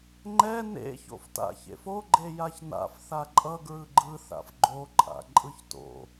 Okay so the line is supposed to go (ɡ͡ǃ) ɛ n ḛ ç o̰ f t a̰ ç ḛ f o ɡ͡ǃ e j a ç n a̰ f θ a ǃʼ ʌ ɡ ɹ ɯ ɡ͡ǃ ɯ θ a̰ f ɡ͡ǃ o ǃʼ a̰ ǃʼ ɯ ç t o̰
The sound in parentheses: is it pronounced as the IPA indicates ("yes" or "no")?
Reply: no